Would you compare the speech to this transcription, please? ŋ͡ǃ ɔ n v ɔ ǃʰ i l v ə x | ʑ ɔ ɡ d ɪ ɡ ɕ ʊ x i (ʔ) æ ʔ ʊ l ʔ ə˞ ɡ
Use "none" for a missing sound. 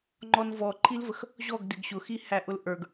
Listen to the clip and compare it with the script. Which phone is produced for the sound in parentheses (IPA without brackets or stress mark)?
h